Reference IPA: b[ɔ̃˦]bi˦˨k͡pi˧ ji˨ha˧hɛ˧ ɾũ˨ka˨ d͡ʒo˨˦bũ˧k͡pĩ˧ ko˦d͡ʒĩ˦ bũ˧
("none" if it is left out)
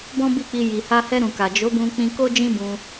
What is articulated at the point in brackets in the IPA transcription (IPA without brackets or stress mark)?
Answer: ɔ̃˦